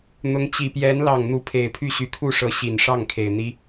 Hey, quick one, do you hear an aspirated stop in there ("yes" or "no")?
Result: yes